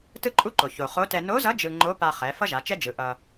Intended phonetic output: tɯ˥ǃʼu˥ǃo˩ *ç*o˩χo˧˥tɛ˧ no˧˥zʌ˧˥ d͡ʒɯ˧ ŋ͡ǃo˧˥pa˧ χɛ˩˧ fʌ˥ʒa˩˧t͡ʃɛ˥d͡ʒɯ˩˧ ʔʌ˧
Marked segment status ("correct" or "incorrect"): correct